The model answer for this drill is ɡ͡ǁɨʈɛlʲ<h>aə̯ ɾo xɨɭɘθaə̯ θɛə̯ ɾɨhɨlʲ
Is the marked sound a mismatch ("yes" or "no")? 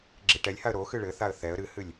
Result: no